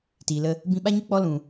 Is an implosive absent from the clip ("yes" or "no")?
no